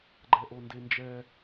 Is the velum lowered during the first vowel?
no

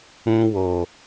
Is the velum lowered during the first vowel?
yes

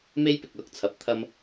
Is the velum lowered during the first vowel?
no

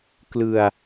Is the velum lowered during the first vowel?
no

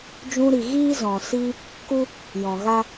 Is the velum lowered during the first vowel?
yes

